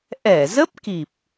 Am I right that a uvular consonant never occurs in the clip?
yes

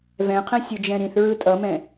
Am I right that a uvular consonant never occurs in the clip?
no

